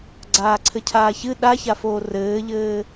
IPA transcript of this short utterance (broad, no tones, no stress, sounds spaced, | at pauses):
ɡ͡ǀ aː ǀʰ ɘ cʰ aː ç ɨ ɗ a ç a f oː r ɘː ʎ ɘː